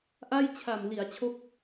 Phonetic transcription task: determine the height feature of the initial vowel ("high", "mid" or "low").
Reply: low